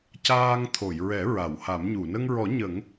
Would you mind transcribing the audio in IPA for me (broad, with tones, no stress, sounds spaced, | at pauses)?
c aː˧ ŋ t̪ʰ o˨˩˨ j ɹ ɛ˨˩˦ ɹ a˨˩˨ w h a˨˩˦ m ɲ u˨˩˨ n ə˧ ŋ ɹ ɔ˨˩˦ ɲ ə˨˩˦ ŋ